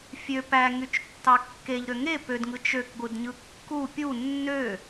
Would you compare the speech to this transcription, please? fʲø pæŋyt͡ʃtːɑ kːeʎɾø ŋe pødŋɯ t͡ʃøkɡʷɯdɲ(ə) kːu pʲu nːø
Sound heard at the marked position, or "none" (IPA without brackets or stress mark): ɯ